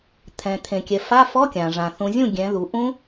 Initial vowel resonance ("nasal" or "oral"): nasal